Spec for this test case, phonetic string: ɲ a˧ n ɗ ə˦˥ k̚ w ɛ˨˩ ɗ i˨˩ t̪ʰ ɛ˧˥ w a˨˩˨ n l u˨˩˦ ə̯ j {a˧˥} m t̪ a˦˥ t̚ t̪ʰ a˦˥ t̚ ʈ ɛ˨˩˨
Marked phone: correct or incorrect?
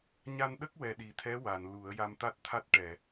incorrect